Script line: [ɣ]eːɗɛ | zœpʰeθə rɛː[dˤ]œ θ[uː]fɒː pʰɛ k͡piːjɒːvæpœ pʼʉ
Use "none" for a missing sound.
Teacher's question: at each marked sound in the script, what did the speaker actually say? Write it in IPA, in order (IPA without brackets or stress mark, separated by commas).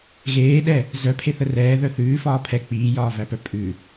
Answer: ɣ, ð, ʉː